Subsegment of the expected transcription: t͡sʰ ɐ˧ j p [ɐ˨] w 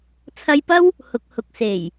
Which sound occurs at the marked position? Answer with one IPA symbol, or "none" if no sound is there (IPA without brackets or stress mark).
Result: ɐ˥